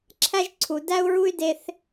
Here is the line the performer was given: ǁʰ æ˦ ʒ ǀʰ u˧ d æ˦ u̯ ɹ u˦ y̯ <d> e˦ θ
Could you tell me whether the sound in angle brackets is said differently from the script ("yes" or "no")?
no